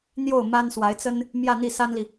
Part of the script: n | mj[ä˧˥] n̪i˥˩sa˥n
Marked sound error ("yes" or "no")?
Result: yes